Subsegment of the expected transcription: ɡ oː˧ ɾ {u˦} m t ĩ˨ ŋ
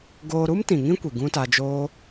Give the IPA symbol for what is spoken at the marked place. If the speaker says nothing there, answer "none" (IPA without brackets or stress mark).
u˦